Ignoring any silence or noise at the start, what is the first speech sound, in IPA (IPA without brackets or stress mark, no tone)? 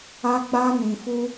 a